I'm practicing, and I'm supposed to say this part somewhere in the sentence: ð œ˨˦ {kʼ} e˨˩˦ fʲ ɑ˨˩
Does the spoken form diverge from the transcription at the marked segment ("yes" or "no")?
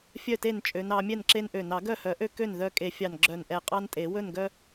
no